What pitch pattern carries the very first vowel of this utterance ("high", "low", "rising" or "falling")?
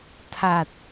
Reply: low